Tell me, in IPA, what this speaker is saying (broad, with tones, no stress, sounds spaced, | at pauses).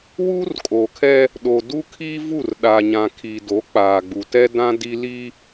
w uː˦ r kʼ oː˨ kʰ ɛ˦ | ɗ o˨ d u˦ kʰ iː˦ v u˦˨ r ɗ a˨ ɲ ã˨ kʰ iː˨ d o˨˦ k͡p aː˨ ɡ͡b u˨ t ɛ˦ d ã˦ d i˦ l i˦